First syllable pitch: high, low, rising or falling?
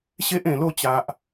high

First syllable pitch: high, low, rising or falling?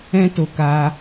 high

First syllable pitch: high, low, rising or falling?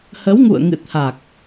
rising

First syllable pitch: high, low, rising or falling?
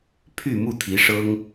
falling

